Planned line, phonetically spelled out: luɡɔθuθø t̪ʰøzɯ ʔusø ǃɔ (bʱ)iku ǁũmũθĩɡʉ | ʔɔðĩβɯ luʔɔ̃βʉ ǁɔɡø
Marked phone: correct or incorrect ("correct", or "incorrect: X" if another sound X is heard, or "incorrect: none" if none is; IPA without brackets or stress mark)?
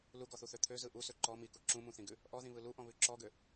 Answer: incorrect: m